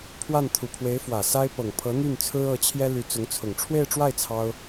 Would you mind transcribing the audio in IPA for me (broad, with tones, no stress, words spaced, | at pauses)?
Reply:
pʰwa˥˩nt̪ʰu˨˩pʰwe˧˥ɪ̯ fwä˨˩sa˥ɪ̯ pɤ˨˩ŋpʰɤ˧˥ n̪y˥˩n t͡sʰɹ̩˥ɤ˧˥t͡ɕʰjɛ˥ ly˧˥t͡sʊ˧˥ŋt͡sʰʊ˨˩ŋ ʈ͡ʂʰwe˥˧ɪ̯ʈ͡ʂwa˥˩ɪ̯ t͡sʰɑ˥ʊ̯